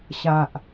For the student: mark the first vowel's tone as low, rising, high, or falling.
low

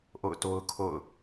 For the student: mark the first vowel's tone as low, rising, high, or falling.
falling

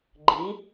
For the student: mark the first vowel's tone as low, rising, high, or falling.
rising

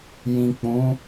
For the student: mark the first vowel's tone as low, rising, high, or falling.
low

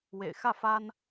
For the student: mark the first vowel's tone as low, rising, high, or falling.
low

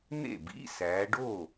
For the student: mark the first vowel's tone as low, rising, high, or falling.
falling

